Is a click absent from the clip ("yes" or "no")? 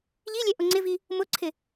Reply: no